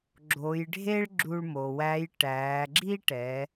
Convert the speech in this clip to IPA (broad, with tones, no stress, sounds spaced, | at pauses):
ɡ͡ǁ o˩˧ j ɖʱ e˥ ɭ ɡ͡ǁ u˧ ɭ m o˩ w æ˧˥ j ʈ æː˩˧ ɡ͡ǁ i˥ ʈ ɛ˩˧